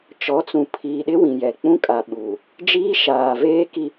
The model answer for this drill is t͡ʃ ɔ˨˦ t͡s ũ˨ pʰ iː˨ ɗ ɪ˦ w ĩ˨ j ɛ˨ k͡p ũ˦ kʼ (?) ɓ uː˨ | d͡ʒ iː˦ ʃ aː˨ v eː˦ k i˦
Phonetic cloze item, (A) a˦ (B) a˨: B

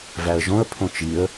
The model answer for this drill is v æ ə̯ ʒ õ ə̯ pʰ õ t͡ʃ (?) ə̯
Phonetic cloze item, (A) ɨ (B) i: B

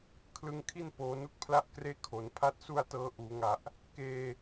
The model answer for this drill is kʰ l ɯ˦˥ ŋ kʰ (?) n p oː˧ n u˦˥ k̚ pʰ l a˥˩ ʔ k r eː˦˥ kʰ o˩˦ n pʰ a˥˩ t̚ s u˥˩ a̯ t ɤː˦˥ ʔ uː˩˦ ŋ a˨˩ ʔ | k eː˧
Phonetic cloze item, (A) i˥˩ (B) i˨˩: A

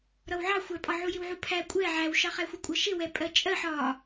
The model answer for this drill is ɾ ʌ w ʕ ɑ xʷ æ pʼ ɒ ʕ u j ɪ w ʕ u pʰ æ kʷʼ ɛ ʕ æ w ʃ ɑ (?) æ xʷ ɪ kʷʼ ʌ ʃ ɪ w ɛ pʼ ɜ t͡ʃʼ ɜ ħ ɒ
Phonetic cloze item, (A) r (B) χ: B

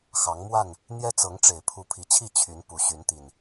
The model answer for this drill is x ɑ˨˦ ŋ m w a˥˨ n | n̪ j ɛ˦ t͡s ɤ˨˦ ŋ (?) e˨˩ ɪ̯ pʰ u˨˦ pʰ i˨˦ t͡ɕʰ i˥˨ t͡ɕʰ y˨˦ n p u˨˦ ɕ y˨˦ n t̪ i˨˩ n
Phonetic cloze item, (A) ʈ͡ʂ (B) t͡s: A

